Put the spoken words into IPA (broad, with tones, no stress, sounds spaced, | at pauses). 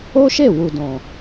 o˦ ʃ e˦˨ w u˨ d ɔ̃˨